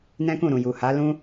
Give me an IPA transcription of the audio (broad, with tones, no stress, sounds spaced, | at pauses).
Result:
n ɛ̃˦ k ũ˦˨ ɾ ũ˨ j u˨ h a˨˦ l ũ˦